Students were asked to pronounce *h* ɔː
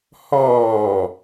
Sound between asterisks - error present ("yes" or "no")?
no